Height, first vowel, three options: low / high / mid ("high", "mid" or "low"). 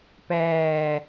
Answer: low